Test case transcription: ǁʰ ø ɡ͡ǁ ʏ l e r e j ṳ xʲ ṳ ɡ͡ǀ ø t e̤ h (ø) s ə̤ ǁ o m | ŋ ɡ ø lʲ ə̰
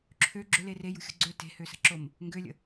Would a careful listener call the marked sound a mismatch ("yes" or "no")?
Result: no